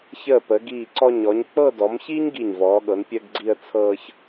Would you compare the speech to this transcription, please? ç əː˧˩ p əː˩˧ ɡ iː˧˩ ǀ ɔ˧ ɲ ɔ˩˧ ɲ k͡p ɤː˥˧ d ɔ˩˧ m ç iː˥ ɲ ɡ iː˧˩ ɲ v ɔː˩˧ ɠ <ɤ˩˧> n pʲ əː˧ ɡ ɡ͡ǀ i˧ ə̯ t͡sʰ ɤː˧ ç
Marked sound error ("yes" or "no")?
no